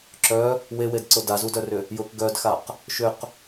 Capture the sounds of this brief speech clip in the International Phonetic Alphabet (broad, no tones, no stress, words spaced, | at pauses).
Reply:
ǁœ | wewedǀʊ dazudœrʏ | jʊk ɡœdxaq | ʃʏq